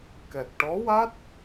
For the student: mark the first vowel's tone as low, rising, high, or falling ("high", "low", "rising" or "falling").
low